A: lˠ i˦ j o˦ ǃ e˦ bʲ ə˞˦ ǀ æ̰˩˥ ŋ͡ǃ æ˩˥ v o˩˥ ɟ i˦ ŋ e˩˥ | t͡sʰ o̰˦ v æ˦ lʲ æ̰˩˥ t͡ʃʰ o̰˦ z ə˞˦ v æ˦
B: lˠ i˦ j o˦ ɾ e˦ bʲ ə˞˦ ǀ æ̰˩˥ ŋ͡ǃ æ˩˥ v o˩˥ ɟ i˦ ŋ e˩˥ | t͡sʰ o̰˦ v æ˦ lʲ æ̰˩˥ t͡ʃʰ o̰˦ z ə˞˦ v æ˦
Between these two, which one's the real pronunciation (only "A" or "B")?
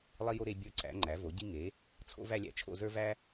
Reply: B